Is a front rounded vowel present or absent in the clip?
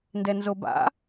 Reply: absent